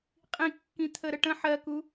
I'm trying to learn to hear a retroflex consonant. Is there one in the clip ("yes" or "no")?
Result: yes